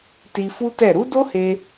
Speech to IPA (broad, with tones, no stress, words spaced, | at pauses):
ti˧fu˦tɛ˦˨ ɾu˨˦do˦he˧